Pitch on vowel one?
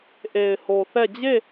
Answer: low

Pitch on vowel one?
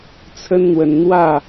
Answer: high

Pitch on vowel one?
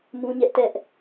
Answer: high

